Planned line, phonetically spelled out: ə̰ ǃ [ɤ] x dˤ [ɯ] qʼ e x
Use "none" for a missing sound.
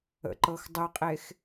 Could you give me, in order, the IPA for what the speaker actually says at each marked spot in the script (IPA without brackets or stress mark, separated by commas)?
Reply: ɤ, ɯ